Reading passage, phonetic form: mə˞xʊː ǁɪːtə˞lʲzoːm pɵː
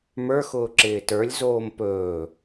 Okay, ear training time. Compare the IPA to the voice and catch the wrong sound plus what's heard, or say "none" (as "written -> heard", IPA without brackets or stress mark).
none